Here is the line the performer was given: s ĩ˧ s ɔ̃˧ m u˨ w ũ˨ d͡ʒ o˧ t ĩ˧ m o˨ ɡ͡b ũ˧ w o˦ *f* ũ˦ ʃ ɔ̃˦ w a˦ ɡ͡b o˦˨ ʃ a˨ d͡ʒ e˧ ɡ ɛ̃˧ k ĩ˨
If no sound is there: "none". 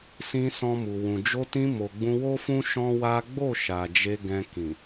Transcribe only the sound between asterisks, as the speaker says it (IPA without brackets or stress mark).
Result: f